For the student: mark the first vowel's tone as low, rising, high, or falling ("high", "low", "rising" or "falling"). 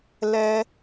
high